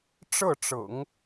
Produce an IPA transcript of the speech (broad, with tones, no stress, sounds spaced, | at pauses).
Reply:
ʈ͡ʂ ɤ˥˩ ʈ͡ʂ ɤ̰˨˩˦ ŋ